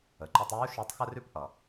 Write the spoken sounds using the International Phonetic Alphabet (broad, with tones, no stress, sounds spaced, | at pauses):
ə˩ ǃ ɵ˧ tˤ uː˧˥ ʃ œ˧˥ tˤ x ə˥ r ʉ˥ p ʔ ʌ˩